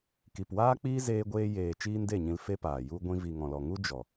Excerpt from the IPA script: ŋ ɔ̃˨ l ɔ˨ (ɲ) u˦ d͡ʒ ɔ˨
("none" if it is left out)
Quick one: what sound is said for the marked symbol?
ŋ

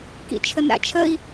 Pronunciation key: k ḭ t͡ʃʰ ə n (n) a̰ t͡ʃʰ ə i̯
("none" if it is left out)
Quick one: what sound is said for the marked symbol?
ɾ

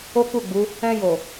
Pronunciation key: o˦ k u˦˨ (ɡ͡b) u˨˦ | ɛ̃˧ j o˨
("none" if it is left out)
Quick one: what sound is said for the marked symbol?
ɡ͡b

